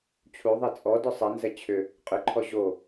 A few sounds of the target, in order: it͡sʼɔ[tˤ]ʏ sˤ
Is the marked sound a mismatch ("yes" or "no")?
yes